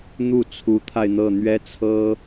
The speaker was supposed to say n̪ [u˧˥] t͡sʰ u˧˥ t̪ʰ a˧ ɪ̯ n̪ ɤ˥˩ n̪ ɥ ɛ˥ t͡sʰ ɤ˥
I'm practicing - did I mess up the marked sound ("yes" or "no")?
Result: yes